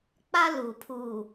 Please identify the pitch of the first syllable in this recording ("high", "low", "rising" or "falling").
high